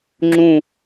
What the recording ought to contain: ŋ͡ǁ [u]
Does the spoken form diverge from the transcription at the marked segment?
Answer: yes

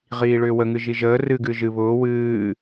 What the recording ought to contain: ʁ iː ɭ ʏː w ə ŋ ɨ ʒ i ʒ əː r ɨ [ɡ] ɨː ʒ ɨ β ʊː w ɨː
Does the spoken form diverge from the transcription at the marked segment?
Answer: no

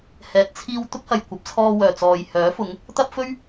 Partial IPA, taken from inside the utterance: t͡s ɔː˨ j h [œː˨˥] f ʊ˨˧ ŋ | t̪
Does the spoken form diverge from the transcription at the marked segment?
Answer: no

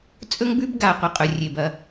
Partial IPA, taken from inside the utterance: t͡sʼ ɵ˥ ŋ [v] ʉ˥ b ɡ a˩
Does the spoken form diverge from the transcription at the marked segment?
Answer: yes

